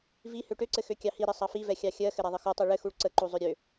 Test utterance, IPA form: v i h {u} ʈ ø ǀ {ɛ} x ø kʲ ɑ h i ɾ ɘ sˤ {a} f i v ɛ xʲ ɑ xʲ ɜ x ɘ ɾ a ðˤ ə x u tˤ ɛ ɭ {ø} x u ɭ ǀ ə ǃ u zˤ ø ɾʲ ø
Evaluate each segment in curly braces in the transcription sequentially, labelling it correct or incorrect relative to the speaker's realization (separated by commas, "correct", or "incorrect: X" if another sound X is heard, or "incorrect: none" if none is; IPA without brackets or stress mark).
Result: incorrect: ø, incorrect: ɘ, incorrect: ɑ, incorrect: ɘ